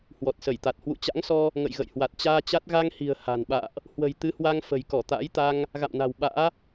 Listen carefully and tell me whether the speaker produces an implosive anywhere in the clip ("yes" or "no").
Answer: yes